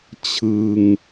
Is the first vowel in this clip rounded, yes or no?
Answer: no